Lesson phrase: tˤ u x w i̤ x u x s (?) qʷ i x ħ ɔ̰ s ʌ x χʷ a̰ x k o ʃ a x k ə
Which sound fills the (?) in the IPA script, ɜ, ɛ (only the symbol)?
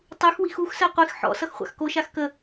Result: ɜ